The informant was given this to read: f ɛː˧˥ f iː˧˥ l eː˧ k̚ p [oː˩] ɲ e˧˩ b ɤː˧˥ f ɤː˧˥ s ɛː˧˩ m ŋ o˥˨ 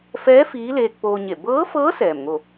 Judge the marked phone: incorrect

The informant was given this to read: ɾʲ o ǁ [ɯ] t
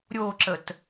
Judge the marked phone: incorrect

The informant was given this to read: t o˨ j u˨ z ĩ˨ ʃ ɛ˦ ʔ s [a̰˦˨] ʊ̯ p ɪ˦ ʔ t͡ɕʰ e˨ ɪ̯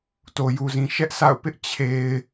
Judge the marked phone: correct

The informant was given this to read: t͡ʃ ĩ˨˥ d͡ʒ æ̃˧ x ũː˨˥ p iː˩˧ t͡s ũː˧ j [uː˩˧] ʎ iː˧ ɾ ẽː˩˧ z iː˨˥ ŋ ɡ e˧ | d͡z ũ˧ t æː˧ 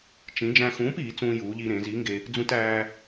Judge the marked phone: correct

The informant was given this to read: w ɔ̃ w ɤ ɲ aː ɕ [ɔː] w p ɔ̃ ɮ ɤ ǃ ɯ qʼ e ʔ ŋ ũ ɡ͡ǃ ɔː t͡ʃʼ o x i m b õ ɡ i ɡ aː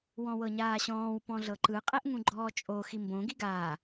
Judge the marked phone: incorrect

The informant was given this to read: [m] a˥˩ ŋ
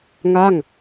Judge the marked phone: incorrect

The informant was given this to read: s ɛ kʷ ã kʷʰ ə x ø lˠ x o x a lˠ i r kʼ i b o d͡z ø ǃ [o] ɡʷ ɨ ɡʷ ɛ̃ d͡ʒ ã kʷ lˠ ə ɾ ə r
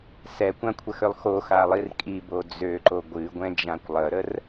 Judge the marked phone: correct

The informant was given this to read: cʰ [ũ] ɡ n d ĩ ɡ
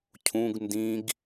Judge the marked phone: correct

